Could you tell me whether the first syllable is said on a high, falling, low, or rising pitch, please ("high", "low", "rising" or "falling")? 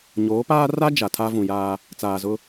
rising